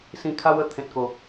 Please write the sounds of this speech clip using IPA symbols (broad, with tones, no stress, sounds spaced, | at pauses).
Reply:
s ĩ˧ kʰ a˦ w ə˧ t̪ʰ ẽ˨ t̚ k o˨˩